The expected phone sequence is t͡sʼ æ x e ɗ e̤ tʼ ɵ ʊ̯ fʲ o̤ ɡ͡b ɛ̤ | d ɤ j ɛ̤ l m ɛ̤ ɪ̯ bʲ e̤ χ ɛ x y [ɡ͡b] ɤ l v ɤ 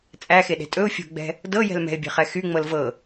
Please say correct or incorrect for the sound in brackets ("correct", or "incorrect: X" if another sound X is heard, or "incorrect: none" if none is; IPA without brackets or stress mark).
incorrect: ŋ͡m